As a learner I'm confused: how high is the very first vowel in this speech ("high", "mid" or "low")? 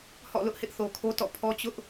mid